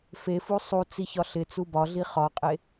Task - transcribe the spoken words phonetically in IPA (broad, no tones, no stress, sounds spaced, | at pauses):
f e f u sˤ u t͡s i ç ɒ ɬ ɪ t͡s u b ɒ ɮ i χ ɒ qʼ e